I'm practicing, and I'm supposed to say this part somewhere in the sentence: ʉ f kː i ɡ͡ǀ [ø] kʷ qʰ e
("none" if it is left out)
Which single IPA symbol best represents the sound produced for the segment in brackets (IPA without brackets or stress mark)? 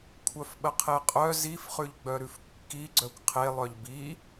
œ